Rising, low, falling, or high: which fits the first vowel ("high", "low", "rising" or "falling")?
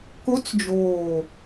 rising